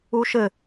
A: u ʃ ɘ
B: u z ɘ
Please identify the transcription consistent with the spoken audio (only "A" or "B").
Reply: A